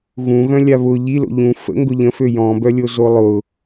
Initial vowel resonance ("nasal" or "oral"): nasal